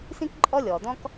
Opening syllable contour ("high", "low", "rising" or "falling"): high